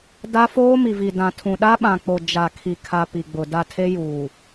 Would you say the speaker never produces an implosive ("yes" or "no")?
no